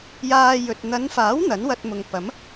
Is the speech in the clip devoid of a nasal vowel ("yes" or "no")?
yes